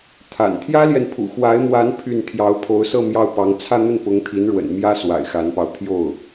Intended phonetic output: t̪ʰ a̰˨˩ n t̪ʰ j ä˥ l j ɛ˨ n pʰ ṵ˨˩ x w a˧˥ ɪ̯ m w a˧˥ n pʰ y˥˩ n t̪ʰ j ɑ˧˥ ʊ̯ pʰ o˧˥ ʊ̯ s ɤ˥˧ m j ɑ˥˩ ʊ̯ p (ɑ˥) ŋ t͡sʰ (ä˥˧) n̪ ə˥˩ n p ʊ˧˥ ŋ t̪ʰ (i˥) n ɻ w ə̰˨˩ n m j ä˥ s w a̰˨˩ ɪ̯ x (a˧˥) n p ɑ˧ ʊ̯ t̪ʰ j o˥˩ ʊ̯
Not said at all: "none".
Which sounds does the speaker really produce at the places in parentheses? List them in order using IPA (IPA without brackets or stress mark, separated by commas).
ɑ˧˥, ä˥˧, i˧˥, a˧˥